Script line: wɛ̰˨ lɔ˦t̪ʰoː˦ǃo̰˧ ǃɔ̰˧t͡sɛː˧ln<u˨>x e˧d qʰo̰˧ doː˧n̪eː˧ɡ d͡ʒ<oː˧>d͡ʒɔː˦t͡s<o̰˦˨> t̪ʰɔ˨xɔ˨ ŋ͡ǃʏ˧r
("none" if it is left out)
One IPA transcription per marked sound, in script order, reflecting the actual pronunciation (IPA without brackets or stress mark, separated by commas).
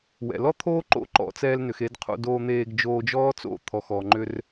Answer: ʏ˨, oː˧, o̰˦˨